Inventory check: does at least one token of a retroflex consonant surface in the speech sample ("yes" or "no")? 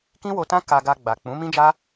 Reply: no